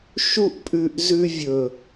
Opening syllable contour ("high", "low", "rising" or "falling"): high